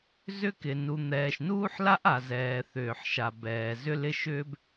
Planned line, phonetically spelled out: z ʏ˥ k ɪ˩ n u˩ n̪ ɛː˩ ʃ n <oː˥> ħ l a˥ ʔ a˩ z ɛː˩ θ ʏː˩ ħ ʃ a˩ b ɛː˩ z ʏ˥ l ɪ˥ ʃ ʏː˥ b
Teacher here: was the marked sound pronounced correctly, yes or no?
no